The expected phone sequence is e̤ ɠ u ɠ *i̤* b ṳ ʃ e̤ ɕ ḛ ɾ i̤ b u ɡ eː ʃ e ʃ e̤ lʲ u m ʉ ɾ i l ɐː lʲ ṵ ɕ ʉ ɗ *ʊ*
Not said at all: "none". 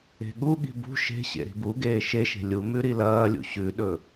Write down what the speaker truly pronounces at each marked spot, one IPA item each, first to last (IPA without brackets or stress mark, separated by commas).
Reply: i̤, ɵ